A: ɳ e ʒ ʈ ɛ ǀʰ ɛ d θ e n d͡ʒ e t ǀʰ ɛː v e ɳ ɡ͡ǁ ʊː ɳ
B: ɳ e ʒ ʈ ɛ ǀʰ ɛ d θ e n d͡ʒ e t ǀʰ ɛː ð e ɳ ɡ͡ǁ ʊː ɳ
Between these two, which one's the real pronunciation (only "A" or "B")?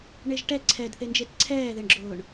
B